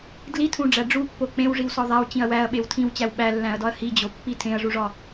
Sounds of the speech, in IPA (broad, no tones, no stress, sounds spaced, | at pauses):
d l i tʰ ũ ɖ͡ʐ æ ɖ͡ʐ u pː o k͡p ẽ w ʐ i w s ɒ ðˤ æ w t͡ɕ ĩ ɐ̯ w æ ɐ̯ ɓ e w tʰ ĩ w t͡ɕ æ w ɓ æ lː æ̃ ɐ̯ d ɒ ɐ̯ h i d͡ʑ o pː i tʰ ẽ ɐ̯ ʐ u ʐ ɒ